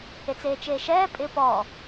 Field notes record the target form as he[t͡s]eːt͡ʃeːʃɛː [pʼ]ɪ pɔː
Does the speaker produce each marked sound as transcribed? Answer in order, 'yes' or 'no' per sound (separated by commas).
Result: yes, yes